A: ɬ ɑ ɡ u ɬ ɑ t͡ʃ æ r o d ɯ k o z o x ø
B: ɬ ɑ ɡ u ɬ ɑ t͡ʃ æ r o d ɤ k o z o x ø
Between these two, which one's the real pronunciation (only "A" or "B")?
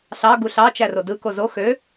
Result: A